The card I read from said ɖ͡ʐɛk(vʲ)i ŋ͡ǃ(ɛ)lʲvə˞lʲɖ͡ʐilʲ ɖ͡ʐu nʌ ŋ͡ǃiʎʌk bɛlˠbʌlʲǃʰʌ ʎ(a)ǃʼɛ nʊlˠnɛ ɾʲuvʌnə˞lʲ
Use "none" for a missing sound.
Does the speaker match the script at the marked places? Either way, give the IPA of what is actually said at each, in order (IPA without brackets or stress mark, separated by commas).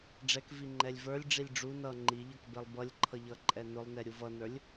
v, ɛ, ʌ